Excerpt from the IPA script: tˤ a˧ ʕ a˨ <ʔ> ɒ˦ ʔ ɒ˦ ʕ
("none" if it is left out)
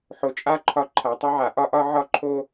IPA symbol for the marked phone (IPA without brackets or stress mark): ʔ